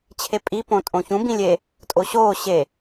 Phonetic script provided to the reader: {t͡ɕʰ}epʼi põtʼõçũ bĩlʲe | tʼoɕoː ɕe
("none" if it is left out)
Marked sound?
t͡ɕʰ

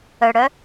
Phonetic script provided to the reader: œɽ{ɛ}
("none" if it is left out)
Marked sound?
œ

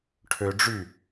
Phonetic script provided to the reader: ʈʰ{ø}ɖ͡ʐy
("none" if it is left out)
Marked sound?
ø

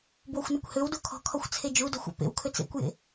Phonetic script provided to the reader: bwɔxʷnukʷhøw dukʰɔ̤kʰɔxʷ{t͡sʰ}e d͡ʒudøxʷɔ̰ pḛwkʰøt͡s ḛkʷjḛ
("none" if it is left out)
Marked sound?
t͡sʰ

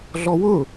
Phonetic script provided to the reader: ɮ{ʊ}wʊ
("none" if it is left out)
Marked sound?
ɔ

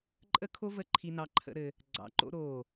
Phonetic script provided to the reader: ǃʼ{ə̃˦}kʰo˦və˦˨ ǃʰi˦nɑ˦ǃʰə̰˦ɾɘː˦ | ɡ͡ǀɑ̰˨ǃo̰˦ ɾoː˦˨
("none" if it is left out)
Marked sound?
ə˦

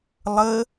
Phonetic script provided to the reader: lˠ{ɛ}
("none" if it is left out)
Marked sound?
ə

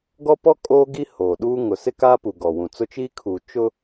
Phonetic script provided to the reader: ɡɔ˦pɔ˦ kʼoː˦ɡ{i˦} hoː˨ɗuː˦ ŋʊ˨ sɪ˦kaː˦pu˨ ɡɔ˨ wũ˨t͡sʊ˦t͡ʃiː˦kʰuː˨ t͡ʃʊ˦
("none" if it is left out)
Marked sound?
i˦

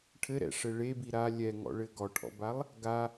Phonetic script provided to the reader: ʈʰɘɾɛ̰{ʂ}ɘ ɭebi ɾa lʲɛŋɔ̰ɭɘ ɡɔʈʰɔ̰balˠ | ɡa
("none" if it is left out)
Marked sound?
ʂ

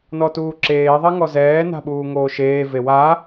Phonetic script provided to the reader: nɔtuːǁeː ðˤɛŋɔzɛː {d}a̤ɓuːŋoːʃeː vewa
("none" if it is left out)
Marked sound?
n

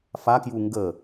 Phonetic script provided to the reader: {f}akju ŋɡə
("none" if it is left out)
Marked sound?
f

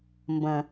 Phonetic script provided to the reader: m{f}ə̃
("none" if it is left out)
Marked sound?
b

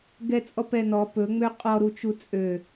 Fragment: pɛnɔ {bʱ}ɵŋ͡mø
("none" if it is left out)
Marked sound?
p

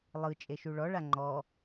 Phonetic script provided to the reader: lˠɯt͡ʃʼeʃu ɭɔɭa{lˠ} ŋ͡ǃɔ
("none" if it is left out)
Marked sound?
none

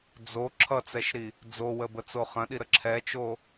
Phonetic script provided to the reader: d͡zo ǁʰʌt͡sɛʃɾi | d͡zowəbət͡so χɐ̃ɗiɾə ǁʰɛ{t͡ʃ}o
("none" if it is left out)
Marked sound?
t͡ʃ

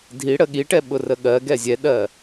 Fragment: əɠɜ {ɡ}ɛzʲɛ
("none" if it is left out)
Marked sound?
ɡ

